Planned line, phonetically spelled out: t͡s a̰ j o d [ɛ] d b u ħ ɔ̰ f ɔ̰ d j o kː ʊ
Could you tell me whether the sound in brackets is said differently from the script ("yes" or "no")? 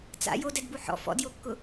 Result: no